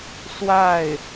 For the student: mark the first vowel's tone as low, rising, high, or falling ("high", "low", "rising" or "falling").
falling